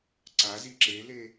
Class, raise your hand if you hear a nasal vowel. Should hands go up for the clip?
no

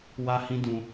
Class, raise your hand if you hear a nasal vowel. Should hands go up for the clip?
yes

